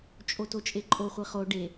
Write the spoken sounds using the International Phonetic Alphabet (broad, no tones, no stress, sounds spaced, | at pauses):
t͡ʃʼ o t o t͡ʃʼ e ǃʼ o χʷ i χ o ɖ e